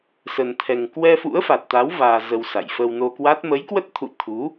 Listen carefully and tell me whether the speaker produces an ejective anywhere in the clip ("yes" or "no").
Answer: no